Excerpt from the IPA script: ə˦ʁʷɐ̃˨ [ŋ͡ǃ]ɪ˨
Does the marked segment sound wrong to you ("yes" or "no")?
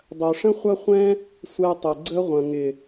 yes